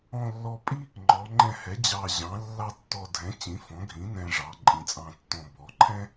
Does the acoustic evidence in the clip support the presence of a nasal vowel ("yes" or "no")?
yes